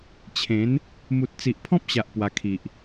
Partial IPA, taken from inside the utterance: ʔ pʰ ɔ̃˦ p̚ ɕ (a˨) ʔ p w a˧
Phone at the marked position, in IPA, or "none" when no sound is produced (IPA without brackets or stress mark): a˨